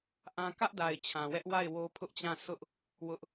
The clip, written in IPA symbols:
ʔ ã˦ k ä˦ ʔ d a˨ ɪ̯ t͡ɕʰ ã˨ w ɛ˦ ʔ w a˦˨ ɪ̯ w o˦ pʰ ʊ˦ ʔ t͡ɕ ã˦˨ sʰ ʊ˦ ʔ | w ʊ˦ ʔ

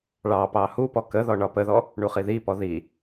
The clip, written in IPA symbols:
ɭ ɑ p ɑ h u p ɔ k ə ð ɔ ɳ ɒ p ə ð ɔ | ɳ u χ i ð i p ɔ ð i

